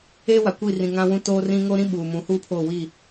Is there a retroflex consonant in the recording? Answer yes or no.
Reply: no